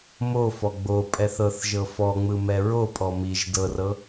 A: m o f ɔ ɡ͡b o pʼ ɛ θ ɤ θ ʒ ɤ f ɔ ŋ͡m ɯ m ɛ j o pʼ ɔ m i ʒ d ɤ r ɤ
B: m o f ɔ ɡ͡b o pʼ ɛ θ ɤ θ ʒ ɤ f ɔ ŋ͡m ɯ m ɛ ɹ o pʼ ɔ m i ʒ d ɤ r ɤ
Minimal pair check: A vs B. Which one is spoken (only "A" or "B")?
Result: B